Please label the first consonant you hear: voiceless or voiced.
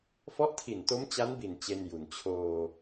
voiceless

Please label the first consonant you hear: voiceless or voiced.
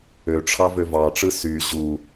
voiceless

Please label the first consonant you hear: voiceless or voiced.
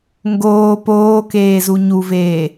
voiced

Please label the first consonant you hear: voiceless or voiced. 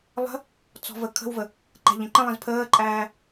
voiced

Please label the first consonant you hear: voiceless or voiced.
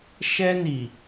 voiceless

